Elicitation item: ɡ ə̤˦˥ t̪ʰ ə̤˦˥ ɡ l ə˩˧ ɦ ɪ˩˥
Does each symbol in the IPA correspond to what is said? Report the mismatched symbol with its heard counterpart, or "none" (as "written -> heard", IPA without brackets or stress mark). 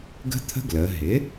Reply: none